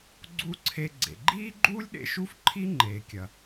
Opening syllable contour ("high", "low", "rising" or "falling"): high